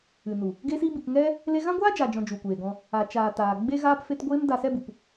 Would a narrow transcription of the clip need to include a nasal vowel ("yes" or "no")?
yes